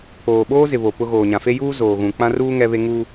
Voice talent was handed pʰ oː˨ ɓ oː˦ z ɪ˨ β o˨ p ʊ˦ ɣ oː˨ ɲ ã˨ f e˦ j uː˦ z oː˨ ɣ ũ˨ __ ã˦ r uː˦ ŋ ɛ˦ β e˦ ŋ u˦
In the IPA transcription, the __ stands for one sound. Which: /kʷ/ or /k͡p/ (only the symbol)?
k͡p